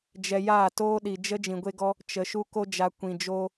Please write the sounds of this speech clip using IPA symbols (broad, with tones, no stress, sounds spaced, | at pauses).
d͡ʒ ɛ˧ j aː˦˨ t oː˦ ɗ i˨ d͡ʒ ə˦ d͡ʒ ĩ˨ ɡʷ e˧ ɡ ɔ˧ | t͡ʃ ə˨ ʃ u˧ k o˧ d͡ʒ a˨ kʷ ĩ˨ d͡ʒ o˧